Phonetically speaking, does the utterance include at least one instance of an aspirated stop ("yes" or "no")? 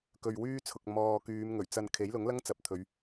yes